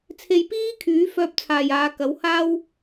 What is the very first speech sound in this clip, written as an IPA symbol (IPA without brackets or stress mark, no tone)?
t͡sʰ